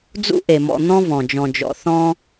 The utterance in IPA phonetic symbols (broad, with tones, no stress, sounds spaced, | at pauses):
d͡z ṵ˥ ʔ e˩ m ɔ̰˨ n̪ ɔ̃˦ v ɔ̃˩ d͡ʒ ɔ̃˨ d͡ʒ ɔ̰˨ θ ɔ̃˦